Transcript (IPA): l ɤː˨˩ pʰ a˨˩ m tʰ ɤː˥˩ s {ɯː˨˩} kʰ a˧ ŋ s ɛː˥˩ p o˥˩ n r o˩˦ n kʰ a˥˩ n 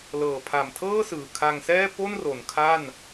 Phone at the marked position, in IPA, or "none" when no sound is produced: ɯː˨˩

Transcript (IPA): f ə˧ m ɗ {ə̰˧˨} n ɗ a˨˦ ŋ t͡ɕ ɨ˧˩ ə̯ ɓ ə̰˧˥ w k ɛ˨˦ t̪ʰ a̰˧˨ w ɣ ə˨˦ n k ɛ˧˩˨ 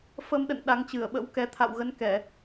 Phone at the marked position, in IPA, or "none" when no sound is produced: ə̰˧˨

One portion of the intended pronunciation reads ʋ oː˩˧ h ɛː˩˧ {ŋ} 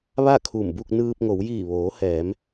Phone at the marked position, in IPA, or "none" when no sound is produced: m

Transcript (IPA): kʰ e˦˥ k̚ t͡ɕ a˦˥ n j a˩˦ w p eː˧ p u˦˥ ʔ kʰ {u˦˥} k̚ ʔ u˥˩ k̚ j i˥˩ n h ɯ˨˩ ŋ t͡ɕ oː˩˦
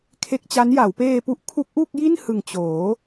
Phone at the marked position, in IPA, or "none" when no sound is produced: u˦˥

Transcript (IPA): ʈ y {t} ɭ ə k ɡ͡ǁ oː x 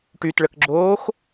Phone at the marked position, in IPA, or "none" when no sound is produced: t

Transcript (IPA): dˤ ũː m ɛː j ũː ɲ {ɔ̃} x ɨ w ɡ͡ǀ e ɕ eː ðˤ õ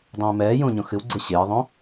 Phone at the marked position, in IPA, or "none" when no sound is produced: õ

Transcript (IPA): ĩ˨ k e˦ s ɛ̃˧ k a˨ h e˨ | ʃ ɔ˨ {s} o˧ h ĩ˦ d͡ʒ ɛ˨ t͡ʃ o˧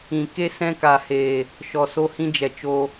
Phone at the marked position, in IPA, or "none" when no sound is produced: s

